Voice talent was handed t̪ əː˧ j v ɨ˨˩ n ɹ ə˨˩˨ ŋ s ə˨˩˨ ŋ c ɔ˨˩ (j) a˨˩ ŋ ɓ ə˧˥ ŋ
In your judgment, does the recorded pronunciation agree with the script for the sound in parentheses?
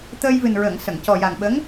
yes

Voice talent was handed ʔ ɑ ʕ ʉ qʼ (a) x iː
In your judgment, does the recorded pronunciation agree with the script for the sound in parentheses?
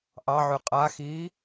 yes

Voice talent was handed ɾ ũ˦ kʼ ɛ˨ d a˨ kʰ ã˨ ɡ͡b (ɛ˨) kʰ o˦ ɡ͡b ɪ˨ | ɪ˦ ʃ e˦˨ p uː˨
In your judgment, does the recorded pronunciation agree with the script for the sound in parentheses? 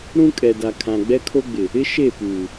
no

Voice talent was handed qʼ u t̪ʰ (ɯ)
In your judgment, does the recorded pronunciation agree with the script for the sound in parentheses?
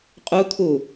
no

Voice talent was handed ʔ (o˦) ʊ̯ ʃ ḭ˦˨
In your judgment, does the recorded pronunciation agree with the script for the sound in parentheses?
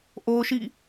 yes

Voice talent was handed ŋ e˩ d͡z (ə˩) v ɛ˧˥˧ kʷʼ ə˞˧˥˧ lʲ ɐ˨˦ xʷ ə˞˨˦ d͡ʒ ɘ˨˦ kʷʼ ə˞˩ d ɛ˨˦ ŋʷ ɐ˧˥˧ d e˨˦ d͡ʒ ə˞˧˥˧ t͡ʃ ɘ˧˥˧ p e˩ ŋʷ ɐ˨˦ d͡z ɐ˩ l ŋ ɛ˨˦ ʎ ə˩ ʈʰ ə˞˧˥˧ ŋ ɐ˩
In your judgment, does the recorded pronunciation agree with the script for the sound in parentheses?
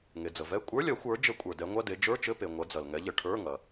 yes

